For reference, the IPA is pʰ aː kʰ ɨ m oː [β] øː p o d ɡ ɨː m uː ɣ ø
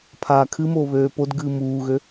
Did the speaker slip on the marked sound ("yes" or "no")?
no